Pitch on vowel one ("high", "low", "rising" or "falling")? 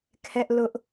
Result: high